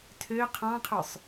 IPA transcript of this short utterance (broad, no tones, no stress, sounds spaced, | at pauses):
tʰ ø qʰ ɑ̃ qʰ ø sˤ